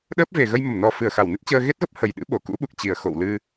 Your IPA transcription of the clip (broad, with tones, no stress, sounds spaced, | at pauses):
ɗ əː˦˥ p̚ v e˨˩ ɣ ə˧ j m ə˧˩ m n ɔ˨˩ f ɨ˧˩ ə̯ x a˧˩ w n ɨ˦˥ t̚ t͡ɕ əː˧ ɣ e˦˥ t̚ ɣ ə˦˥ p̚ h ə˨˩ j ɗ ɨ̰˧˥ ɓ o˨˩ k ṵ˧˥ ɓ u˨˩ k̚ t͡ɕ i˨˩ ə̯ x o̰˧˨ w l ɨ˧